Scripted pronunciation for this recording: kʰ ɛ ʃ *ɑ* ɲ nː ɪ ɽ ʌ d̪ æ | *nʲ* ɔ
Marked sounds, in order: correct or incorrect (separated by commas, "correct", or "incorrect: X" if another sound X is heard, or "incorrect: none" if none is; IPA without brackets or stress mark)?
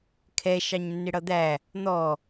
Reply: correct, incorrect: n̪